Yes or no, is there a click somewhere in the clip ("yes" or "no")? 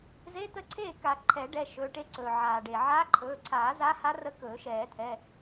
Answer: yes